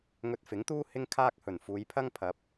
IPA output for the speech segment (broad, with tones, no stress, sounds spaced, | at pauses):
ŋ ɵ˧ t̚ f ɪ˨˥ ŋ t̪ uː˥ h ɪ˥ ŋ kʰ aː˥ k̚ h ɵ˨˩ n f uː˨˧ j pʰ ɐ˥ ŋ pʰ ɐ˨˥ p̚